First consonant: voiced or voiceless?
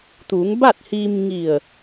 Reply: voiceless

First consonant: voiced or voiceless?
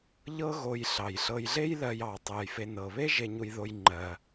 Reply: voiced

